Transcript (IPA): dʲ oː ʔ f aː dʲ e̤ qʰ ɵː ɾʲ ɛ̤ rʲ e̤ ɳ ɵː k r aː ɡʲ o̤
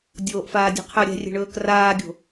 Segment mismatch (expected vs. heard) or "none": none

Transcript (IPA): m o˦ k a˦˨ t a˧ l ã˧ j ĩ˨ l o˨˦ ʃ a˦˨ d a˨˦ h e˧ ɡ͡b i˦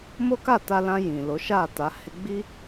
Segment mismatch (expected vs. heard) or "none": d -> t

